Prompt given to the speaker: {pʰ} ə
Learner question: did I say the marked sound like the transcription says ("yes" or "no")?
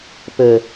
no